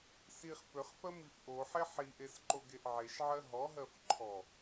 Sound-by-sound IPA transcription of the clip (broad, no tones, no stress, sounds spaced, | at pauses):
s i χ p ø χ f ɜ m i f ʔ o ħ e ħ i ʔ e s ǃ o ɡ e ʔ ʕ e ʃ ʕ ɜ ɦ ɔ ɦ ɜ f ǃʰ ɔ